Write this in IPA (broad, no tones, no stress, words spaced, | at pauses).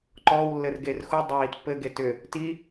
ǃɔwlːɘr ɡerxudˤəw itpːɘɡe tʏ | ti